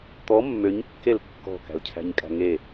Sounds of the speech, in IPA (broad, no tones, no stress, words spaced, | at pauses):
t̪ɔ mːøɲkːel kːɔ̤kæ̤lcʰæ̤ɲkʼæ̤ ŋe